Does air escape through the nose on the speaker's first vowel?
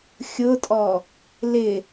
no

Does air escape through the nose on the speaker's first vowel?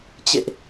no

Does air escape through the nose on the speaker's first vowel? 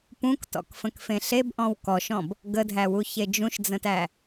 yes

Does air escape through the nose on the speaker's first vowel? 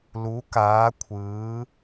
no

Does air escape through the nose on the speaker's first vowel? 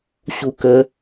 no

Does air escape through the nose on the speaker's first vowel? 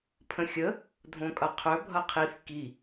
yes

